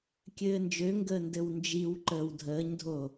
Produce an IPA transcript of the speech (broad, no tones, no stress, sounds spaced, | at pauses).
kʲ ɘː n d͡ʒ ø ŋ ɡ əː n d ɘ w n d͡ʒ i w ǃ əː w dʱ əː ɲ dʱ o